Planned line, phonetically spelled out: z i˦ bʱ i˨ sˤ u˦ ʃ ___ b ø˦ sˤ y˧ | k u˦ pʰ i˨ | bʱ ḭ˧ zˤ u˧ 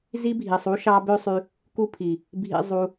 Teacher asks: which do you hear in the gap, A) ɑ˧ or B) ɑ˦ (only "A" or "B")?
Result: B